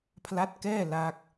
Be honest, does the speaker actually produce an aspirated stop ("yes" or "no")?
yes